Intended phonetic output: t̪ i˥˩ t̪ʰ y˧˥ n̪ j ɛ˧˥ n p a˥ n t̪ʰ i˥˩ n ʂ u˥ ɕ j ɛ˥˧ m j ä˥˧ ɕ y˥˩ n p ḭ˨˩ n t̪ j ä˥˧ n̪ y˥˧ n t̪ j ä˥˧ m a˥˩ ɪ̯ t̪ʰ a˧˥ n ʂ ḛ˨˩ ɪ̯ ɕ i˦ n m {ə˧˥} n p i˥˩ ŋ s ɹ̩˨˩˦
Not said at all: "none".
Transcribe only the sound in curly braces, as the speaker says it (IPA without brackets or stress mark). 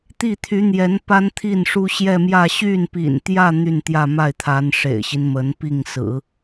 ə˧˥